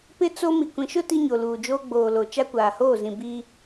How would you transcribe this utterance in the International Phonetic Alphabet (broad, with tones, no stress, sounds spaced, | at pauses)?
p ɪ˦ t͡s o˦ m i˨ kʷ ĩ˨ ʃ ʊ˦ t i˦ ɲ o˨ l uː˨ d͡ʒ oː˦ ɡ͡b oː˨ l o˨ t͡ʃ a˦ kʷ aː˨ h oː˦˨ z ĩ˨ b iː˦